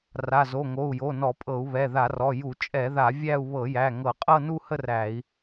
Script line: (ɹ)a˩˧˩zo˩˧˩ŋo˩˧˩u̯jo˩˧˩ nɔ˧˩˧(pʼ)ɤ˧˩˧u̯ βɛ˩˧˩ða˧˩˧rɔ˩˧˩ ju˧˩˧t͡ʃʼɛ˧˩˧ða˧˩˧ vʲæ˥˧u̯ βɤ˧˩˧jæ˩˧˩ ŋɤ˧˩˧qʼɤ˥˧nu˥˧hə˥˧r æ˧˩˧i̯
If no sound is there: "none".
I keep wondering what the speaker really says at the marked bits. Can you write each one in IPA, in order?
r, pʼ

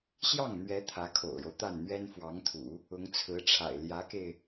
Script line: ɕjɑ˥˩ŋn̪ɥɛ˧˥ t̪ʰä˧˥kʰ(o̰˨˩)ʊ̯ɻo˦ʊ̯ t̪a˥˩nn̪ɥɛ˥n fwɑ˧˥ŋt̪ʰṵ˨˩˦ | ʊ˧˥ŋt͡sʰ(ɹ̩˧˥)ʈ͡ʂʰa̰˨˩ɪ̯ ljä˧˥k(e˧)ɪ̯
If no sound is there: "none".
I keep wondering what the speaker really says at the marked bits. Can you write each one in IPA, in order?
o̰˨˩, ɹ̩˧˥, e˧

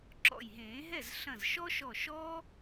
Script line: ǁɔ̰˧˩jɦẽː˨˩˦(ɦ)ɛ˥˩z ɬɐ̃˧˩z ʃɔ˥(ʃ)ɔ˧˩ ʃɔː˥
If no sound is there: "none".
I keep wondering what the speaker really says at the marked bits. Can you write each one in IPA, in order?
ɦ, ʃ

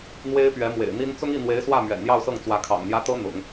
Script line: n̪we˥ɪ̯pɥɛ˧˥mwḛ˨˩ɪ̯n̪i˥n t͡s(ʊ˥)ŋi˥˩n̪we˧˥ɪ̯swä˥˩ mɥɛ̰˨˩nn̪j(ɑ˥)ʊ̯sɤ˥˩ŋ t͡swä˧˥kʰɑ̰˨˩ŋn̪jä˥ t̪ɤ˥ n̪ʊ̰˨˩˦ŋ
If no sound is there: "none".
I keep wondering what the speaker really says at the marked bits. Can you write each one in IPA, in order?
ʊ˥, ɑ˥˧

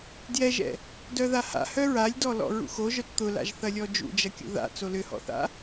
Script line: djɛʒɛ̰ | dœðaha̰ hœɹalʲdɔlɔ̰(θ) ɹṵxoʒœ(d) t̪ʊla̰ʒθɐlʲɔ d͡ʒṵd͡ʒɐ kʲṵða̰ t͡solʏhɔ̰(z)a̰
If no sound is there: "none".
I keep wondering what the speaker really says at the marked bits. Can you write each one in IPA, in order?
none, t, θ

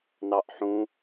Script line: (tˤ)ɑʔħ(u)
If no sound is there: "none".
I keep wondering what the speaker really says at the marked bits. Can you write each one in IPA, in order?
n, ũ

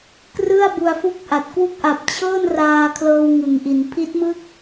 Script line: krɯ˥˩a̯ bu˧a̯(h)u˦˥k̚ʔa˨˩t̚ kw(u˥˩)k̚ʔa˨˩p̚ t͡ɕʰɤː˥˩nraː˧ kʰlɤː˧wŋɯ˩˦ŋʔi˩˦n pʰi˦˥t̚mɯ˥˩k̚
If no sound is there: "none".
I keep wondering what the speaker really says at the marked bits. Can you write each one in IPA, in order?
f, u˥˩

